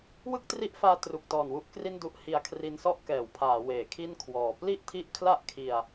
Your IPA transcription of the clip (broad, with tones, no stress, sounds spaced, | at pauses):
w ɯ˥˩ k̚ t r i˦˥ ʔ f aː˧ t r u˨˩ k̚ t ɔː˨˩ n w u˦˥ ʔ k r i˥˩ n d u˦˥ ʔ h i˧ a̯ kʰ r i˧ n s ɔ˥˩ ʔ k ɛː˩˦ w pʰ aː˩˦ w eː˩˦ kʰ i˥˩ n kʰ w ɔː˨˩ p l i˥˩ ʔ tʰ i˦˥ ʔ kʰ l a˥˩ ʔ kʰ i˧ a̯